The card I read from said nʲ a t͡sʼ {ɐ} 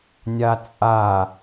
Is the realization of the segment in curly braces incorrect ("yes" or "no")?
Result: yes